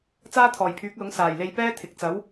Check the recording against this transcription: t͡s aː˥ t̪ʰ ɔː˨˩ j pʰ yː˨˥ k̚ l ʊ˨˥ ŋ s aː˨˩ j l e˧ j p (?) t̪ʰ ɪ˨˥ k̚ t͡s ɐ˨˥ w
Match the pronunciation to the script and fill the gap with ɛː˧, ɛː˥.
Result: ɛː˥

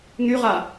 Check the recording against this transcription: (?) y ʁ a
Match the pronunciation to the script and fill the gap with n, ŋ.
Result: ŋ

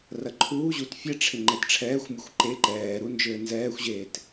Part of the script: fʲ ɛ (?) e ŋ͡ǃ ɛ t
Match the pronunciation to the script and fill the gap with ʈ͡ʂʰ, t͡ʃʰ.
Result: ʈ͡ʂʰ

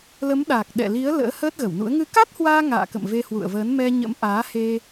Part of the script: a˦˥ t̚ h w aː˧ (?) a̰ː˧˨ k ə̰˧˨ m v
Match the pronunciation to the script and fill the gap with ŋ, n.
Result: ŋ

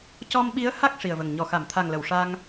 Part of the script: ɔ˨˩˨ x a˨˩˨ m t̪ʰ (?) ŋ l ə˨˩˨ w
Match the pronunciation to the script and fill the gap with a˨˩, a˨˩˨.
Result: a˨˩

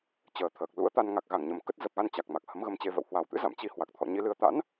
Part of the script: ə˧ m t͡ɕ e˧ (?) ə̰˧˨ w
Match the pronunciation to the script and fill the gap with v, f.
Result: v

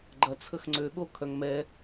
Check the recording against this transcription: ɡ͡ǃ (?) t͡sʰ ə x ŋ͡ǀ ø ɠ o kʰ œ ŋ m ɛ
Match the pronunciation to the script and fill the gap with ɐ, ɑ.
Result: ɐ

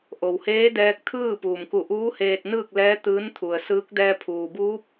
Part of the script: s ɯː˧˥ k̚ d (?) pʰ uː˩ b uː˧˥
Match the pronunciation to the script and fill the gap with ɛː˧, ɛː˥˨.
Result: ɛː˧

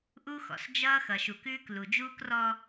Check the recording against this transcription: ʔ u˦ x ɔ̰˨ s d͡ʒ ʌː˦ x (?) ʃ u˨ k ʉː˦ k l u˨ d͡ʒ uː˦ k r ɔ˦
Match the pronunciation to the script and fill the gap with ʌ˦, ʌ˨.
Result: ʌ˨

